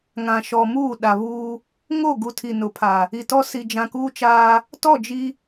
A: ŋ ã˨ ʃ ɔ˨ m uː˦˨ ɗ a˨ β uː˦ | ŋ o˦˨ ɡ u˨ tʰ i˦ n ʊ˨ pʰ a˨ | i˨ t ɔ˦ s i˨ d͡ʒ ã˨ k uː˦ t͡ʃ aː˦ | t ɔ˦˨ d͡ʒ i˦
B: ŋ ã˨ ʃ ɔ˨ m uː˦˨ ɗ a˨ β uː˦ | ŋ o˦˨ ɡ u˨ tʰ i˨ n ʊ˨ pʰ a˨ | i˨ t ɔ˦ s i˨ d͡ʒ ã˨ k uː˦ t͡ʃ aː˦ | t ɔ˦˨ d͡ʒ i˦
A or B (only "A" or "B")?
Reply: B